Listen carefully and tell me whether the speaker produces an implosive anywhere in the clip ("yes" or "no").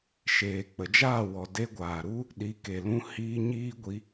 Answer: yes